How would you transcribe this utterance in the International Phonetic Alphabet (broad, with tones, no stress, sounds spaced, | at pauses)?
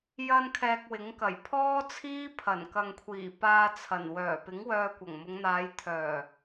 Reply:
j ɐ˧ n kʰ ɛː˧ k̚ w ɪ˨˥ ŋ k ɐ˨˩ j pʰ ɔː˥ t͡sʰ iː˥ pʰ ɐ˨˩ n k ɐ˨ ŋ kʷʰ iː˨˩ p aː˧ t͡sʰ ɐ˨˩ n w œː˨˩ p ɪ˨˥ ŋ w œː˧ kʷ ɐ˨˩ ŋ m ʊ˨˧ ŋ n̪ aː˨˧ j t̪ʰ œː˨˩